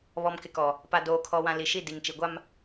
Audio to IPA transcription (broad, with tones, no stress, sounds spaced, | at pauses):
β ɔ˨ m k ɪ˨ k ɔ˨ | p a˨ d oː˨ kʰ ɔ˨ w ã˨ l i˨ ʃ i˦˨ d i˨ ŋ t͡ʃ i˨ ɡʷ a˦ m